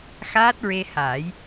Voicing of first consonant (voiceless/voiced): voiceless